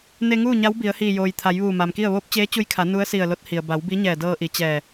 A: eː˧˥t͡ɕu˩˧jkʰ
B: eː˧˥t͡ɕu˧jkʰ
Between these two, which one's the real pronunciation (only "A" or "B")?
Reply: B